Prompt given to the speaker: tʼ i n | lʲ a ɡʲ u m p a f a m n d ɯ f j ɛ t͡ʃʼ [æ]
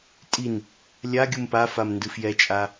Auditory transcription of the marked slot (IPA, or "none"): a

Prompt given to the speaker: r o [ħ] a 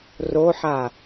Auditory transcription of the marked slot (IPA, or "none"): ħ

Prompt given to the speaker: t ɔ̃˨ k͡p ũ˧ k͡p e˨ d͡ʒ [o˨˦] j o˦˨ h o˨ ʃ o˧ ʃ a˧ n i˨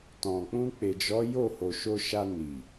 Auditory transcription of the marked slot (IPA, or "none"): ɔ˨˦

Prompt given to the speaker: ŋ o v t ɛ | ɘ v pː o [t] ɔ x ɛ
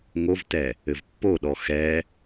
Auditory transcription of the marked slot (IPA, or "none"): ɗ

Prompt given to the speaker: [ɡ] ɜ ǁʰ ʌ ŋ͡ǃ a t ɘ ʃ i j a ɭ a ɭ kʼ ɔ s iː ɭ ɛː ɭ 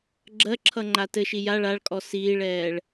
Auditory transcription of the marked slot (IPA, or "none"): ɡ͡ǁ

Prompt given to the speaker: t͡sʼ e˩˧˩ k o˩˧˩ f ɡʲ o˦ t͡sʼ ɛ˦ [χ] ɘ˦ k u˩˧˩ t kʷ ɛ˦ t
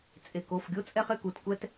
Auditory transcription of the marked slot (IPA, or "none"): χ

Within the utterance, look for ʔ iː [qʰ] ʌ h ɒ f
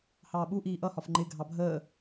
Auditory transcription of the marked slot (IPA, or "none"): ʔ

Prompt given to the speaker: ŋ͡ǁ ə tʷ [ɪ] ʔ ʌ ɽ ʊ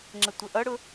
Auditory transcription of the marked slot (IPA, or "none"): ə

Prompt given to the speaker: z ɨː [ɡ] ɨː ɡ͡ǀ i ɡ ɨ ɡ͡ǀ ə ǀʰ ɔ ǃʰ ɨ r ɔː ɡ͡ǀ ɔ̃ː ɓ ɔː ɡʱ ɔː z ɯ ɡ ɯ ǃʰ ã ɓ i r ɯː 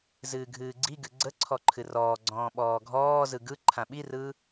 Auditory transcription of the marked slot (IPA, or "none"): ɡʱ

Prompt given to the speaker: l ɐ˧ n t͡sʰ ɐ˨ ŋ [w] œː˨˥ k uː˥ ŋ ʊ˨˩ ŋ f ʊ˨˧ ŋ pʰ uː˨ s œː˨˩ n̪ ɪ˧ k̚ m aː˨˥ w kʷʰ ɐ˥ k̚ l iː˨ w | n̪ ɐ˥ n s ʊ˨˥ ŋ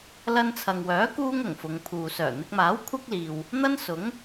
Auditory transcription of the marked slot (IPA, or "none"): w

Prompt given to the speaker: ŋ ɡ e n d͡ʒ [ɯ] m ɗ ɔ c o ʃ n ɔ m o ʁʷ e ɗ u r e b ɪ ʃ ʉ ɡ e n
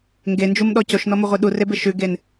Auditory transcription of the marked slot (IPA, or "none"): u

